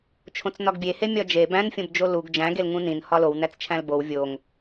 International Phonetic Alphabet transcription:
t͡ʃʰ õ t͡s n ɒ ɡ bʲ e h e mʲ ɒ d͡ʒ e b æ̃ n fʲ õ b d͡ʒ o l u ɡ d͡ʒ æ̃ ɡ e l ŋ ũ n ĩ n h ɒ l o w n æ t͡s t͡ʃʰ æ̃ l b o w vʲ o ŋ

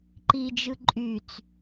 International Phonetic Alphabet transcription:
ǃ i d͡ʒ ɯ ǃʼ y t͡s

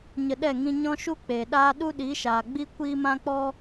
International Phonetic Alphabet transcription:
ɲ ə˧ ɗ ɛ˦˨ ŋ ĩ˧ ɲ ɔ̃˦ ʃ u˦ k͡p eː˨ ɗ aː˦ ɗ u˦ ɗ i˨˦ ʃ aː˨ ɡ͡b i˦ kʷ iː˦ m ã˦ k͡p ɔ˦

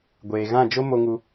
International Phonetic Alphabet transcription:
ɡʷ eː˨ ɣ ã˦˨ d͡ʒ o˦ m o˧ ŋ u˧

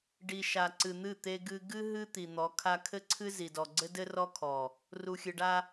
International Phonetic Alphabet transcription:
ɖ i˨ ʃ a˨ ǀ ɨ˨ n̪ ɨ˦˨ t̪ e˦ ɡ ɨ˦ ɡ ɨ˦ ɦ ɨ˦ t̪ i˨ n̪ ɔ˨˦ kʰ a˦ kʰ ɘ˦ ǀʰ ɨ˦ z i˨ d ɔ˨ ɡ͡ǀ ɘ˦ d ɘ˦ r ɔ˦ kʰ ɔ˨ | r u˨ xʲ ɨ˨ ɖ a˦

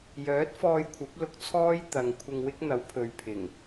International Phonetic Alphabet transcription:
j œː˨˥ t̚ f ɔː˧ j kʷʰ ɐ˨˥ p̚ l ʊ˧ k̚ t͡sʰ ɔː˥ j t̪ ɐ˨ ŋ kʷʰ ɪ˧ ŋ w ɪ˥ k̚ n̪ ɐ˨˥ w pʰ ɵ˨ ɥ pʰ ɪ˨˩ ŋ

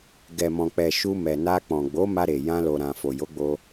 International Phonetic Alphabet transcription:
ɡ ɛ˨ m ɔ̃˨ k͡p ɛ˨ ʃ u˧ m ɛ˨ n a˧ k͡p ɔ̃˨ ɡ͡b o˨˦ m a˧ ɾ e˨ j ã˧ l o˨ ɾ ã˨ f o˨ j o˨˦ ɡ͡b o˧

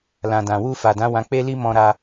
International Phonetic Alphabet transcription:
l ã˨ d ã˨ w u˧ f a˨ d ã˨˦ w ã˧ k͡p e˦ l i˦ m ɔ̃˧ ɾ a˧

